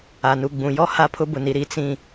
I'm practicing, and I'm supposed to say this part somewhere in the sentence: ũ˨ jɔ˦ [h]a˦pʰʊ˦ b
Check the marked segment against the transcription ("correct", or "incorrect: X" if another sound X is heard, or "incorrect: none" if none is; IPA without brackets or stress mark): correct